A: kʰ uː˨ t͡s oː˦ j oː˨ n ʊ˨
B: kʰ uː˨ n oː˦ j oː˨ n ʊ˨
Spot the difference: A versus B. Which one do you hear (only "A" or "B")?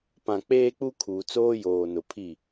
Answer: A